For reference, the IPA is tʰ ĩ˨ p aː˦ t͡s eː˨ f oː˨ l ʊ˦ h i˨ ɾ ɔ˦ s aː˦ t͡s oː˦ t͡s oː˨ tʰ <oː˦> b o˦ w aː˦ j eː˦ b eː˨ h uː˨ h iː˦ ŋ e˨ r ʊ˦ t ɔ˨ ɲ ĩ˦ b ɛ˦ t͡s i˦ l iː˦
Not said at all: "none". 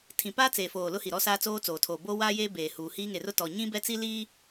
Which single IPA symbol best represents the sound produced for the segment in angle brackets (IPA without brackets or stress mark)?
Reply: oː˨